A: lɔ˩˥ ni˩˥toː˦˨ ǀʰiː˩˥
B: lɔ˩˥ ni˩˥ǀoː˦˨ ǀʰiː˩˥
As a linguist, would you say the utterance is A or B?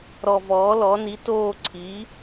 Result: A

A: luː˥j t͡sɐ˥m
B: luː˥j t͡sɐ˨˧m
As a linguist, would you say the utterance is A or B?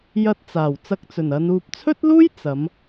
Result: B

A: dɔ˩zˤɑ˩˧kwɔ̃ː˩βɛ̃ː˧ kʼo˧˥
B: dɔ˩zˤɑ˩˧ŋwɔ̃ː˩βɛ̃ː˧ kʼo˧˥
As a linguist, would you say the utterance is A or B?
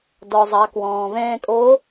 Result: A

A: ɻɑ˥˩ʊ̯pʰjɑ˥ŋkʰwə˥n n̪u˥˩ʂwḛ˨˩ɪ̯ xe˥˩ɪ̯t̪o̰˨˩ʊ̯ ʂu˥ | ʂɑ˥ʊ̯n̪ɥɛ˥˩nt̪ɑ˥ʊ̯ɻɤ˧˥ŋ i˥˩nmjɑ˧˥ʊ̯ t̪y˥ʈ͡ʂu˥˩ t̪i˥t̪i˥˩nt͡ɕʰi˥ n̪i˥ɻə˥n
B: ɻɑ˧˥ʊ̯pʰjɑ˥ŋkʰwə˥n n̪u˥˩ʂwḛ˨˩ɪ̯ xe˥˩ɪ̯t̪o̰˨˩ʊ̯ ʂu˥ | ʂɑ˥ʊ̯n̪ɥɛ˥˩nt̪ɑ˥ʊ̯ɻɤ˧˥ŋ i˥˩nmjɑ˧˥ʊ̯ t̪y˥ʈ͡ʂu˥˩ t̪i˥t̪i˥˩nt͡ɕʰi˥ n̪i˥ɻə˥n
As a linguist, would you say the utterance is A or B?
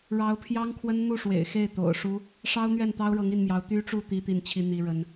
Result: B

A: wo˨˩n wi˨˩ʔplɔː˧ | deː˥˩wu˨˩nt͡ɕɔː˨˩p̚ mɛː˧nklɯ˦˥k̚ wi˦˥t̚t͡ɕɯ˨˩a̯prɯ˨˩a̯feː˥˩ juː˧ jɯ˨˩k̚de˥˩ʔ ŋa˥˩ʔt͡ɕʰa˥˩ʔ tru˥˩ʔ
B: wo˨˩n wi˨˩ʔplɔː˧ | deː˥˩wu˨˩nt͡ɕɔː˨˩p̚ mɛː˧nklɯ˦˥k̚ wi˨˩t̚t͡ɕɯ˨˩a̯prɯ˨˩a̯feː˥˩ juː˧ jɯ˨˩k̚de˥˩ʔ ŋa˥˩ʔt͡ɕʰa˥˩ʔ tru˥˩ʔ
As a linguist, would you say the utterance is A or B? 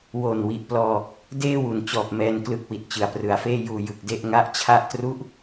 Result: B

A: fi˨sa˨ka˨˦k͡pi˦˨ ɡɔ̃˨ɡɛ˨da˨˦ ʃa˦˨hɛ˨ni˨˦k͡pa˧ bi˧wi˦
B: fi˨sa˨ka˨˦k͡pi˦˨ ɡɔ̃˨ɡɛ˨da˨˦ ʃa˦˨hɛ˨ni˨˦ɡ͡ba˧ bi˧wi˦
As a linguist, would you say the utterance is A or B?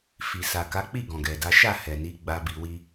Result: B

